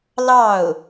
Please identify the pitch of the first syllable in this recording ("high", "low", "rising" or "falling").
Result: falling